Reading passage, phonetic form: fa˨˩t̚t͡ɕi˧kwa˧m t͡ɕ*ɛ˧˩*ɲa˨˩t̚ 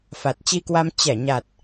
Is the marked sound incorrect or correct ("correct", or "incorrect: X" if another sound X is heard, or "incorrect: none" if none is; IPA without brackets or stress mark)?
correct